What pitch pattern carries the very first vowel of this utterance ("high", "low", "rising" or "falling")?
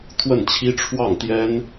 falling